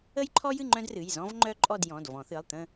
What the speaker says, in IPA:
ə˥ j ǃʰ ɔ˥ j ɨ˥˧ ŋ͡ǃ œ̃˥ d r ɨ˩˧˩ j z ɔ̃˥ v ŋ͡ǃ œ˥ ǃʼ ɔ˥˧ d j ɔ̃˩˧˩ d v ɔ̃˨˩˦ θ ɨ˩˧˩ lˠ t̪ ə̃˥˧

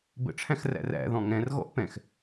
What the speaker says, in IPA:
b ə̰ ʈ͡ʂʰ æ̃ x r æ̰ r æ̰ ð ɔ̃ ŋ ɛ̃ r ɣ ɔ̰ ʔ p ɛ̃ x

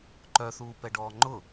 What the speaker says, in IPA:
ǃ œ θ uː p ɛ ɖ ɔː ŋ͡ǃ ʊ

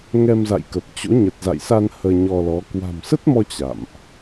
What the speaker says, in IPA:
ŋ ɛ˧ m z a̰˧˨ j k ə˨˩ p̚ t͡ɕ o̰˧˥ ɲ ə˨˩ t̚ z a̰˧˨ j s a˧ n h əː˧ ɲ ɔ˧ l ɔ˨˦ k w a̤˨˩ m s ə˦˥ t̚ m ɔ˧ t͡ɕ a̰˧˨ m ʔ

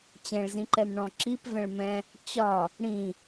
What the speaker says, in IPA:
t͡ɕ ɛ̃ ɭ z ĩ ǃ ɛ m ɳ ɔ̃ ǁ i p v ɛ̃ ɭ m ɛ̃ | t͡ɕ ɒ | ɽ ĩ

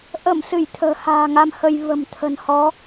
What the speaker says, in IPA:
ʔ ə˧˩ m s ɨ˧˩ j t̪ʰ ə̤ː˨˩ h a̤ː˨˩ ŋ a˧ m h ə˧ j v ə̤˨˩ m t̪ʰ ə̤˨˩ n h ɔ˨˦

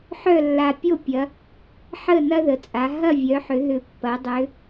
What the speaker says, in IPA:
ħ œ˥˨ lː a˨˩ pʲ o˥˨ pʲ ɐ˩˧ | ħ ə˥˨ n ɐ˦ ð ə˩˧ t͡sʼ a˩˧ ɦ ɐ˥˨ vʲ œ˩˧ ħ ʏ˩˧ ð ʏ˨˩ pː ɐ˩˧ dˤ ʏ˩˧

